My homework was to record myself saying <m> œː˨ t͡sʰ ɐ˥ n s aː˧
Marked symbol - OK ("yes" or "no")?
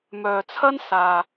yes